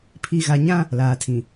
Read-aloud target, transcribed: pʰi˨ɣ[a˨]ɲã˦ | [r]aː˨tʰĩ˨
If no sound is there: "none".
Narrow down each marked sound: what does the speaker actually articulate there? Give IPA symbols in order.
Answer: a˨, l

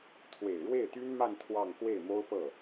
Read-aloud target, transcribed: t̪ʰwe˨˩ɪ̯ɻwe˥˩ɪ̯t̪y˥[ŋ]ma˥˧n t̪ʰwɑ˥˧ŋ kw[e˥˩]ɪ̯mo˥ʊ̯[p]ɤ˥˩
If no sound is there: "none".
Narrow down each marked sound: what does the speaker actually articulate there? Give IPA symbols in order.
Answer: n, e˥˩, p

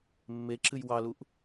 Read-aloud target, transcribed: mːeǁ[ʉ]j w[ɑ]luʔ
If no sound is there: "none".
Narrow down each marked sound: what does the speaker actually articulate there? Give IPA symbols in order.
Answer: ɨ, ɑ

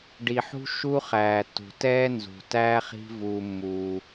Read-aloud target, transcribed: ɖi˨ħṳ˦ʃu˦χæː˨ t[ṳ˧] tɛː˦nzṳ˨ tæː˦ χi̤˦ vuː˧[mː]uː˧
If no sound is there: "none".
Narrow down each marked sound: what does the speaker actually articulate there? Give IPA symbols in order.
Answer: ṳ˨, mː

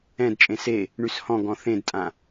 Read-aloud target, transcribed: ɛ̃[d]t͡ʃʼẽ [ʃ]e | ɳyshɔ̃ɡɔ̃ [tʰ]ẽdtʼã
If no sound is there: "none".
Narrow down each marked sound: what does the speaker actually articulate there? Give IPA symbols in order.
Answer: d, s, θ

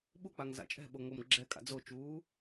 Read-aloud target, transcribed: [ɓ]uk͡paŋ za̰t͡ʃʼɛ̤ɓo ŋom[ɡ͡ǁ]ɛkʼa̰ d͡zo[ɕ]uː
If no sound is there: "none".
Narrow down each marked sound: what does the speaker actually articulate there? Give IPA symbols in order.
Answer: ɓ, ɡ͡ǁ, t͡ʃ

